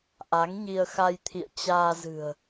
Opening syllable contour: rising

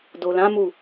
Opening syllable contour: low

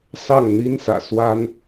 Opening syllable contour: falling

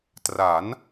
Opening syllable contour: rising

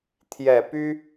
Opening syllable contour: low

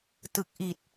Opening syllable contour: low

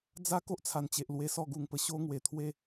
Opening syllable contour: high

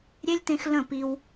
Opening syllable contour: high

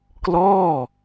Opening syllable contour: falling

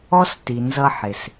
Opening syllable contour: high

